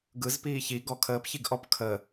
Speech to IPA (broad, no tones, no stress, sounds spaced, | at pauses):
ɡ ɯ z p iː ç i ɡ ɔ kʰ əː p ç i ɡ ʔ ɔ p kʰ ə